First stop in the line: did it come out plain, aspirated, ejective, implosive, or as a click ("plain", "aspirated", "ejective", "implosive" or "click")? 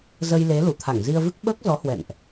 aspirated